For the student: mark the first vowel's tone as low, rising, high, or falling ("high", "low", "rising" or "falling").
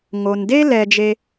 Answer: low